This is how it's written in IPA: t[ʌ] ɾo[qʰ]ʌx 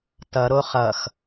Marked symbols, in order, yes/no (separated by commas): yes, no